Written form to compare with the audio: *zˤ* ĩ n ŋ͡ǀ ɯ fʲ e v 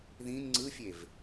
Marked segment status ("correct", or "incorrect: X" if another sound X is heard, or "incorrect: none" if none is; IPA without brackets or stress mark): incorrect: ð